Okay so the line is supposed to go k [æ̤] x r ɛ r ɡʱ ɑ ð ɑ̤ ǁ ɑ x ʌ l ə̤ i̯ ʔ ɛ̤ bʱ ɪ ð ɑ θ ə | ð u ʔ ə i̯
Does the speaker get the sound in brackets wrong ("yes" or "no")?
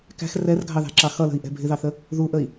no